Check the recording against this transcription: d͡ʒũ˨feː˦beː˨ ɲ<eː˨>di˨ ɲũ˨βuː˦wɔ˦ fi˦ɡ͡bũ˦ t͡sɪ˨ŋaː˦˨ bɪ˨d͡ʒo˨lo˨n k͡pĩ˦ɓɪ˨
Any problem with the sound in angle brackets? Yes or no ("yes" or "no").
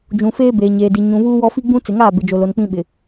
no